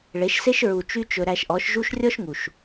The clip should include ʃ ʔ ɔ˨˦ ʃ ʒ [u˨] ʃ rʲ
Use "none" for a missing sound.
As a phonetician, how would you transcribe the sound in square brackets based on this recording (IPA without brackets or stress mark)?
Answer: u˦